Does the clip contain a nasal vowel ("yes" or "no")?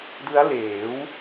no